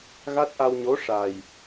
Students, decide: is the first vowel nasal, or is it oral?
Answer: oral